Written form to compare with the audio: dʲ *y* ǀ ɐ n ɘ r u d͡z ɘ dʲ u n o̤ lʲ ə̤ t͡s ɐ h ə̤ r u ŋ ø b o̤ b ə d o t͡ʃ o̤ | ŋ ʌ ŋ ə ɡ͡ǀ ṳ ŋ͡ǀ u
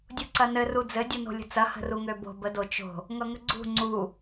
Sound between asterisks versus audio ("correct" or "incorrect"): incorrect